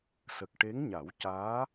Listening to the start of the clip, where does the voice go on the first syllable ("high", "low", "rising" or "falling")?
low